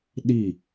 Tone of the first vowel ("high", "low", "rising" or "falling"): falling